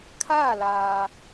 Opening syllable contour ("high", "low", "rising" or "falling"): falling